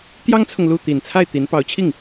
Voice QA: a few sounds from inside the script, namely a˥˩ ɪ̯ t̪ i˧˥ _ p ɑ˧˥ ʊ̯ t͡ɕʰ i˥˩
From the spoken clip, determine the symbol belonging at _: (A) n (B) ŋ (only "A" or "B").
A